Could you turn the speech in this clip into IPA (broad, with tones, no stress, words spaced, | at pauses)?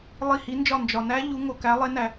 lˠi˧˩hi˨˦nd͡ʒɒ˧˩ nd͡ʒɒ˩næ˦˥ ʎu˨˦ ŋo˩kæ˨˦lˠe˨˦næ˩